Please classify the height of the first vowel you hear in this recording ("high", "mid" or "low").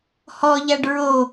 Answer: mid